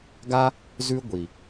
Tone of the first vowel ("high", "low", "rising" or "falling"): high